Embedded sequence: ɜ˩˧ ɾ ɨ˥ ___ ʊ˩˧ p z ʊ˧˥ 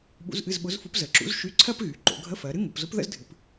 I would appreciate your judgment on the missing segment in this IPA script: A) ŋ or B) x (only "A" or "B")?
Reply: A